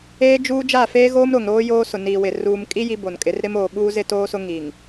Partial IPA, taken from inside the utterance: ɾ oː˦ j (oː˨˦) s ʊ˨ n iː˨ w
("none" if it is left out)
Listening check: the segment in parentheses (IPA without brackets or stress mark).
oː˦